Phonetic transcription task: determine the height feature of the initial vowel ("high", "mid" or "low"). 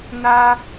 low